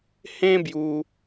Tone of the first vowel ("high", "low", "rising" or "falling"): high